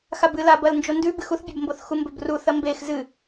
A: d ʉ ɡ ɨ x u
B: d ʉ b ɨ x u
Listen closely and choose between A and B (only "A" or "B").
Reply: B